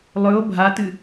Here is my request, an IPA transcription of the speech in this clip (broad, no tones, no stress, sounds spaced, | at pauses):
lˠ ɵ o̯ bʱ a t ɨ